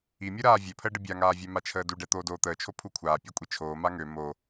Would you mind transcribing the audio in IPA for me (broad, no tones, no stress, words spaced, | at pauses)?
imʲuɾaː vʲøpʰəːɖə bʲaŋaːvʲɛ mat͡ʃʰəːduɖɛ t̪oːdoːt̪əːt͡ʃʰo pʰukʷʰaː pʲøkʷʼit͡ʃʰoː maŋø mo